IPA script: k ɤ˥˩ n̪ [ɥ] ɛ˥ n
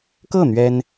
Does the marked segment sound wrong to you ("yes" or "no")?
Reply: no